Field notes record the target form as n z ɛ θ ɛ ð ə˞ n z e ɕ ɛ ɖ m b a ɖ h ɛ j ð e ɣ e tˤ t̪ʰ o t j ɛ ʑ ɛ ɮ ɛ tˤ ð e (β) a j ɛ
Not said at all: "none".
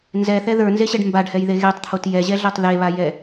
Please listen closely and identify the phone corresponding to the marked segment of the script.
β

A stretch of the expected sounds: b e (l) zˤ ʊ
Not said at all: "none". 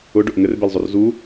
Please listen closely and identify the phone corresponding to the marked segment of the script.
l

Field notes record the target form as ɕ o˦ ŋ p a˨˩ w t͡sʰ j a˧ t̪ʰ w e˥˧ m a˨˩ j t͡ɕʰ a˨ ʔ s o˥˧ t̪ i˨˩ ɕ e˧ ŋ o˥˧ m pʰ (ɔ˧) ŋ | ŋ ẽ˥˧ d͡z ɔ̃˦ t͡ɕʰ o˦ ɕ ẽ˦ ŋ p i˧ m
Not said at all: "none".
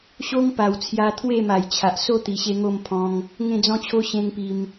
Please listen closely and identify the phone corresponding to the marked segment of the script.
ɔ̃˧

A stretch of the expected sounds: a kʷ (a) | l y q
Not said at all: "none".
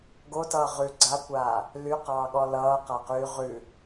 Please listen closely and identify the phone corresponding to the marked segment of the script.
aː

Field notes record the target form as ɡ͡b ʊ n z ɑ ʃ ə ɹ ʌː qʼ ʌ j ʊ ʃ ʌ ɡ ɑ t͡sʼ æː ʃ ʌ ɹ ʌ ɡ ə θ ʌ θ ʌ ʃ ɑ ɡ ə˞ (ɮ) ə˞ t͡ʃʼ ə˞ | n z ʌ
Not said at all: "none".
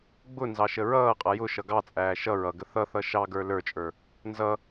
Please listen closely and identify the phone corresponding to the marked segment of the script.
l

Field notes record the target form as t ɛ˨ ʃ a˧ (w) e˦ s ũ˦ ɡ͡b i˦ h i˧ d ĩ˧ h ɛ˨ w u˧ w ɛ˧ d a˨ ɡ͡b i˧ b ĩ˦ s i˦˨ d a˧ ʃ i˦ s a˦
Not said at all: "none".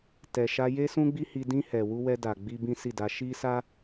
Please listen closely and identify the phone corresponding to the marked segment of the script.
j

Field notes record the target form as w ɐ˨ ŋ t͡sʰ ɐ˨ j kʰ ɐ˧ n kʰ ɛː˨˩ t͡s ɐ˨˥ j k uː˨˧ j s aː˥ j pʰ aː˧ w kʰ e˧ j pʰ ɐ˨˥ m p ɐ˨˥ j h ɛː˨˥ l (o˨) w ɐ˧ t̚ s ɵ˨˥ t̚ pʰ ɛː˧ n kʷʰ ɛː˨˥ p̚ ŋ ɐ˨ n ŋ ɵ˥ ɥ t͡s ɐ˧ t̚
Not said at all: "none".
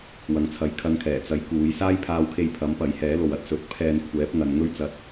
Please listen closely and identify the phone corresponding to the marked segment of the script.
o˨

